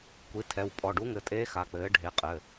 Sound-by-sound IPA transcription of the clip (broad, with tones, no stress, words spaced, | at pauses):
kʷi˩˥tʰɛ˩˧˩w pʼɔ˩˧˩ɖu˧˥ŋɘ˩˧˩tʼeː˧˥ xa˩˧˩k͡pɘː˩˥ ɖʱe˩˥qʼɘ˩˧˩